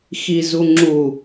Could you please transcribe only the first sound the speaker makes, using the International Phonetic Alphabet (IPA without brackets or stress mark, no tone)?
x